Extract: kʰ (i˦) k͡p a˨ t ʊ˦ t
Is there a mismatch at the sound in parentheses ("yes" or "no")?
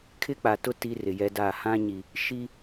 yes